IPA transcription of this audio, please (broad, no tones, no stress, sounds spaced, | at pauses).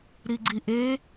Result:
ɾ i ɡ͡ǀ i ʔ e